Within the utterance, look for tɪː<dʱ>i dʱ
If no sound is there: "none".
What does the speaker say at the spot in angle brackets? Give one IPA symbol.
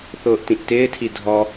tʰ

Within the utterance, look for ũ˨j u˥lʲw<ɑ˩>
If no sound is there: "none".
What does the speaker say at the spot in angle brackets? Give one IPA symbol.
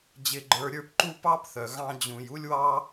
ɑ˥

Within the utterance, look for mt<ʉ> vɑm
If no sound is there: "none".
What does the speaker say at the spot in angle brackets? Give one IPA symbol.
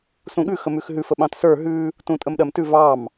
ʉ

